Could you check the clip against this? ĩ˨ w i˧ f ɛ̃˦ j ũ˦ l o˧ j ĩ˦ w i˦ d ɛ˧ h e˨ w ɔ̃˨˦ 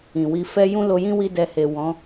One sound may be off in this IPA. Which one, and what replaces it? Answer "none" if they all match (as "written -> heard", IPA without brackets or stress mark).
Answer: ɛ̃˦ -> ɛ˦